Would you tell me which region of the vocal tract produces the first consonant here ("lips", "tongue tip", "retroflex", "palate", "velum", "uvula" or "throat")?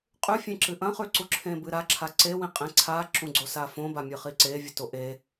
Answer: uvula